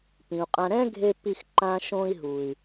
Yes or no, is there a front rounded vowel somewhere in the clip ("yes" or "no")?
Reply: yes